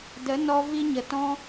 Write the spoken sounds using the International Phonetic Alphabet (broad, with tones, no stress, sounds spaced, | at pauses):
d ə˨˦ n ɔ˧ v i˦ ɲ ə˨ t ɔ̃˦